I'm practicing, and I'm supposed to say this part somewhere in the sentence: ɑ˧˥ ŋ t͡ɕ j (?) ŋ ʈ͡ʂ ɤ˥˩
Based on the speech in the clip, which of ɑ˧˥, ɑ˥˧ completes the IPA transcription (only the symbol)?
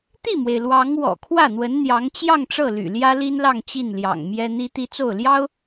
ɑ˥˧